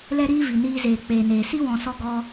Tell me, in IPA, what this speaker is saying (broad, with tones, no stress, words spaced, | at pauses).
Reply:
lɛ˦ɾiː˦ vi˨niː˧zeː˨ k͡peː˨neː˨ si˦wɔ̃˨sɔ˧ ɡɔ˧